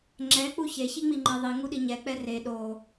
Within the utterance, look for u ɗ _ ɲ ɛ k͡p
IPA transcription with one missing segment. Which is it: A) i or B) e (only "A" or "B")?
A